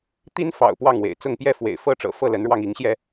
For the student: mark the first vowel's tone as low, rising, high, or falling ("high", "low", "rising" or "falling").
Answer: high